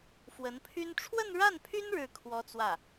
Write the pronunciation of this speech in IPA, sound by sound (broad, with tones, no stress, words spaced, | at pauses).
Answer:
fwə˧˥npʰy˥n ʈ͡ʂʰwə˥˧nɻa˥˩npʰy˥n ɻɻ̩˥˩ kʰwɔ˥t͡swä˥˩